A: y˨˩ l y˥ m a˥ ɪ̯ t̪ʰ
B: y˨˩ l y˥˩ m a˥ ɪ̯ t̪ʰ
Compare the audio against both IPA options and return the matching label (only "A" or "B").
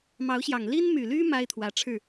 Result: A